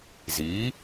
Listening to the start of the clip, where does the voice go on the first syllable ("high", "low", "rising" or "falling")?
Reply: rising